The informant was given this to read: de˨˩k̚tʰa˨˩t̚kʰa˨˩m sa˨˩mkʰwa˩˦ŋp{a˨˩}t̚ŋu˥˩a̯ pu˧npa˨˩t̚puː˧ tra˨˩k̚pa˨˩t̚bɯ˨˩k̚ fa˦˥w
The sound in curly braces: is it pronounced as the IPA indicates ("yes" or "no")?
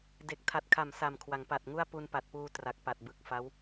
yes